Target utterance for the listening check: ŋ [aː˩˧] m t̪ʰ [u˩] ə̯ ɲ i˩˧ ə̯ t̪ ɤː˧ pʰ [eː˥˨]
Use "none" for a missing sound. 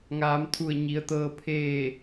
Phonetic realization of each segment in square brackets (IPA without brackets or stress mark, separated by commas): aː˩˧, u˧˩, eː˥˨